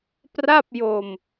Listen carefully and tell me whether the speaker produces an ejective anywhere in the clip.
no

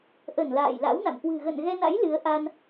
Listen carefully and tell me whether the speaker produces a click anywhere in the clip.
no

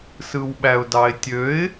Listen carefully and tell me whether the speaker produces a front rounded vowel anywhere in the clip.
yes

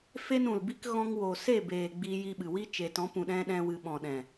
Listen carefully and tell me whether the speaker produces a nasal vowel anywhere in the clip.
yes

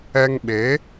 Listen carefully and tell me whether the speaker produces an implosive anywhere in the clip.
yes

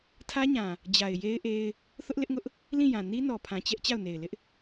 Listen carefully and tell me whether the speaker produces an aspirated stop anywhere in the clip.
yes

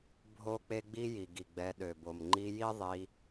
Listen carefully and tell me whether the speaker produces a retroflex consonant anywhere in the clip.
no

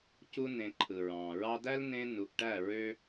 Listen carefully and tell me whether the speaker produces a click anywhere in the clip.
yes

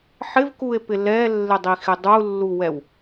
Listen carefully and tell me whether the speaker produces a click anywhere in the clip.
no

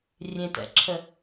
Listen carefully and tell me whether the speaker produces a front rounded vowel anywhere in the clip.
no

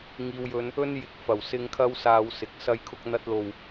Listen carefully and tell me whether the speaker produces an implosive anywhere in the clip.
no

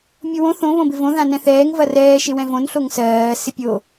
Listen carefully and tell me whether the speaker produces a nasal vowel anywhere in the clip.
yes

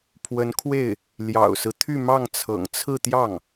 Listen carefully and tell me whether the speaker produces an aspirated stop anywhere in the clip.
yes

